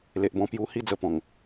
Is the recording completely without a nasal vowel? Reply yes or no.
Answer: no